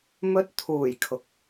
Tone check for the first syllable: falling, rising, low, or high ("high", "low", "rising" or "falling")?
high